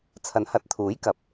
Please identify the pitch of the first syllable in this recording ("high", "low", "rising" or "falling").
rising